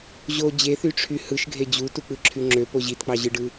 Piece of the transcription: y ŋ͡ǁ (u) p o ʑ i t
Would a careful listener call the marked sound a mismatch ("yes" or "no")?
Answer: yes